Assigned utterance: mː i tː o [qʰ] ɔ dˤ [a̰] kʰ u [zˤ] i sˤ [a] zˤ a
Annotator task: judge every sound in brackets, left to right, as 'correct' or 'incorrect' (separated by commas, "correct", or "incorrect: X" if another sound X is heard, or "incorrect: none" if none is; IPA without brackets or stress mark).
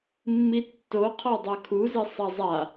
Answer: correct, incorrect: a, incorrect: z, correct